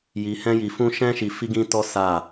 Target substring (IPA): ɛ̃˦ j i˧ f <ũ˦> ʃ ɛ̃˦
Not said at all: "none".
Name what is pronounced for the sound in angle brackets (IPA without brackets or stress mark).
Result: ũ˦